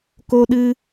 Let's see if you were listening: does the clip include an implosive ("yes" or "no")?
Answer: yes